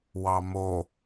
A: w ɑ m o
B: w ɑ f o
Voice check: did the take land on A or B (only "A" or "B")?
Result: A